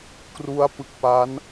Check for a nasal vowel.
absent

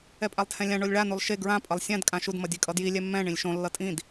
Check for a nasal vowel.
present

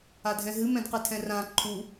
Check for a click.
present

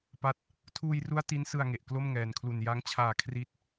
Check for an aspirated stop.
present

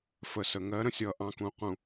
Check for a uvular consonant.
present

